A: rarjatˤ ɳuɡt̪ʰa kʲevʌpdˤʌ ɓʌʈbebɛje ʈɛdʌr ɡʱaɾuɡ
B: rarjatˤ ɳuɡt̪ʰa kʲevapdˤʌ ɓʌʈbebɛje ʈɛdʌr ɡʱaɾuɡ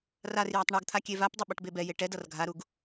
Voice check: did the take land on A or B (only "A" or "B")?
B